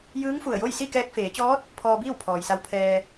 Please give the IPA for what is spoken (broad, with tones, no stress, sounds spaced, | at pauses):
j ɯː˧˥ ŋ f u˧˩ ə̯ j o˥˨ j s i˥˨ k ɛː˧ k̚ f eː˩˧ t͡ɕ ɔː˧˥ t̚ | pʰ ɔː˧ b iː˥˨ w pʰ ɔː˩ j s a˧ w pʰ ɛː˧